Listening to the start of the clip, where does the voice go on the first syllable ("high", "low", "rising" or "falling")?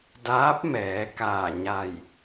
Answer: rising